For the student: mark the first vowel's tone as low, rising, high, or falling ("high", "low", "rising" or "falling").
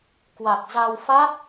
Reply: low